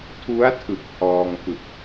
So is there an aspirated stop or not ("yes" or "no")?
yes